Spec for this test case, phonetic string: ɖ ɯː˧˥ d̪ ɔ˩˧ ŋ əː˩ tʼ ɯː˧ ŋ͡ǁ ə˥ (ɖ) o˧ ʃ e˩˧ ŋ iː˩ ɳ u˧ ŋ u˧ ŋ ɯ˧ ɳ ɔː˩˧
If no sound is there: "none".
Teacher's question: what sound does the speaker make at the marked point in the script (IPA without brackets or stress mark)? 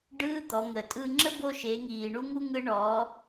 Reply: b